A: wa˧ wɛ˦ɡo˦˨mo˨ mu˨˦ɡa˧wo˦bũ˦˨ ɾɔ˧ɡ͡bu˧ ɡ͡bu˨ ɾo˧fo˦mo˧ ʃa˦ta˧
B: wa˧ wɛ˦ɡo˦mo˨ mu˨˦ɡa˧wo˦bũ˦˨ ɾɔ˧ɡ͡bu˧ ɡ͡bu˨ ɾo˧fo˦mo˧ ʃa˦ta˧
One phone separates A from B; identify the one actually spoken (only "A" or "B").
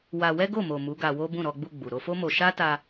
A